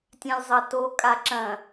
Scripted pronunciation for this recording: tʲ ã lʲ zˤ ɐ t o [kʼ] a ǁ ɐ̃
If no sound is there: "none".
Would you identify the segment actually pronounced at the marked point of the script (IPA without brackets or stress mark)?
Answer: kʼ